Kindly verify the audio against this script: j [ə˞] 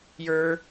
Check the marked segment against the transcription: correct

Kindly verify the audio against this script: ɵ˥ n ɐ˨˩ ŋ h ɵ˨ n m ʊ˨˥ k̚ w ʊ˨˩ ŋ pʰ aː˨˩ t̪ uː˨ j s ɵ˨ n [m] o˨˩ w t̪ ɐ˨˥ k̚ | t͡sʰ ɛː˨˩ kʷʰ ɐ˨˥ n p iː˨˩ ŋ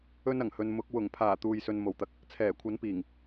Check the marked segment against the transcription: correct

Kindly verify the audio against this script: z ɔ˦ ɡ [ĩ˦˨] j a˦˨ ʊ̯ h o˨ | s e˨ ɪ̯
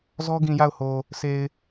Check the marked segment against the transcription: incorrect: ĩ˨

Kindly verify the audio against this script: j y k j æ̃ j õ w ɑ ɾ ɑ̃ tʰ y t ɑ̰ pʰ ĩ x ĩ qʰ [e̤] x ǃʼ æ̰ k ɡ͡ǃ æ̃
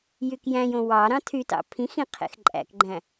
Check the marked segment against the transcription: incorrect: ḛ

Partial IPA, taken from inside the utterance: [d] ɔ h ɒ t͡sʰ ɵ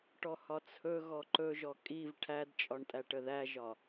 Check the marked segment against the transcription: incorrect: ʈ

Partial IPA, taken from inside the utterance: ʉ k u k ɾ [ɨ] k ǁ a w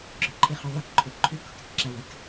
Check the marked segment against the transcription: correct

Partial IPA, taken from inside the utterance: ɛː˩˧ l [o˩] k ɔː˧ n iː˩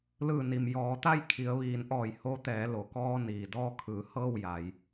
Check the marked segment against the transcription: correct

